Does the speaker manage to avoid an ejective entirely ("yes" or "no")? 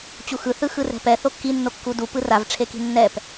yes